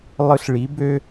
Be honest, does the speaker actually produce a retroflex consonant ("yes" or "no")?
yes